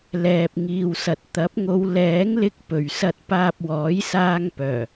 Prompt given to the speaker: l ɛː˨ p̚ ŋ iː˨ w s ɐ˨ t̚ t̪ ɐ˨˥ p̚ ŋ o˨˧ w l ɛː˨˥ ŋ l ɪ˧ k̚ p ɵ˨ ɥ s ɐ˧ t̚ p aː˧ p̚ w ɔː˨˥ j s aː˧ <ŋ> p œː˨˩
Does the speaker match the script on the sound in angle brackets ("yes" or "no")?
yes